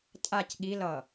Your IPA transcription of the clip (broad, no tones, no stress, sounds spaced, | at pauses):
tʼ a c ɠ i l ʌ